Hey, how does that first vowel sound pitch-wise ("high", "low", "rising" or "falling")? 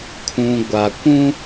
low